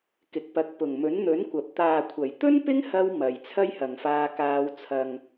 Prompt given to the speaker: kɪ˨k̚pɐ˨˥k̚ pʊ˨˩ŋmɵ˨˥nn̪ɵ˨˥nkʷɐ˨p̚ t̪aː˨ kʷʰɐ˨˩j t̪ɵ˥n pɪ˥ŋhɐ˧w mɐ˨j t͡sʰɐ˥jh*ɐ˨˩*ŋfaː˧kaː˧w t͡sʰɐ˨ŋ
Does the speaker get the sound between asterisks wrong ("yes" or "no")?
yes